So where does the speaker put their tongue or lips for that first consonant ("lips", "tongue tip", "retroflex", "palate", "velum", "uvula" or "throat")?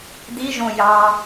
tongue tip